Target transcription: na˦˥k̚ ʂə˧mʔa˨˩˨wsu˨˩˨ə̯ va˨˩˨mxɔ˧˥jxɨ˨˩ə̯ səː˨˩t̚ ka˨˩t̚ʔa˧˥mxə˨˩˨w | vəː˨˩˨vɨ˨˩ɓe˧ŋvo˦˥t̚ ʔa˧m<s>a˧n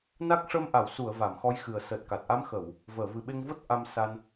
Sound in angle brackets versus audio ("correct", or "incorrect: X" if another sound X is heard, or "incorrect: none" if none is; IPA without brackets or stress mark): correct